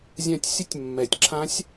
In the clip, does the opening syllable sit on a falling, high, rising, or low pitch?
falling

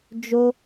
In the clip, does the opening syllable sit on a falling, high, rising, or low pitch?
high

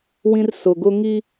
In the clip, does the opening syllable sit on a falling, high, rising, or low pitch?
high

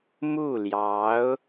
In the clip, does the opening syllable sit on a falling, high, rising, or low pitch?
falling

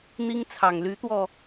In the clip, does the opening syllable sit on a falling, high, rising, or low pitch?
high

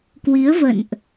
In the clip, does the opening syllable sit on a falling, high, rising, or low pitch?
rising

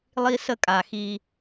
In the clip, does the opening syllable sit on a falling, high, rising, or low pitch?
high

